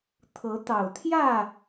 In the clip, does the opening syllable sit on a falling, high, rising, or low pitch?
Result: rising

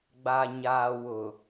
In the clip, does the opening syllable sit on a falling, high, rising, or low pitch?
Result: low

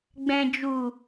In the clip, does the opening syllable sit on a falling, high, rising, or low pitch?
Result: low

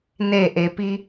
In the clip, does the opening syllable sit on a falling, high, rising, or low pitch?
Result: falling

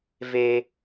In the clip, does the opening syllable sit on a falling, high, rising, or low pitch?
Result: high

